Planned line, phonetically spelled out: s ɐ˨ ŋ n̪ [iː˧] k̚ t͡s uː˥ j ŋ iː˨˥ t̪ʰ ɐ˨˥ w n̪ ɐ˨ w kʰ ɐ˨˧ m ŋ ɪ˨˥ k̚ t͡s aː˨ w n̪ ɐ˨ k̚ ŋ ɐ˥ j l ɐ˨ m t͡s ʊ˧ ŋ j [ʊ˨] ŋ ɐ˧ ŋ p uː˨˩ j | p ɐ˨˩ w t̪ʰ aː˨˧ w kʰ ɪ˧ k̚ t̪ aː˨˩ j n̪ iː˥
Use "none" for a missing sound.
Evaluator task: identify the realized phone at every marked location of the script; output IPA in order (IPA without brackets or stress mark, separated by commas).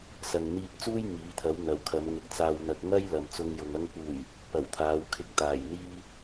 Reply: iː˧, ʊ˨